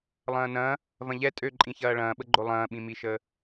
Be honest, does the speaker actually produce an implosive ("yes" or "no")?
yes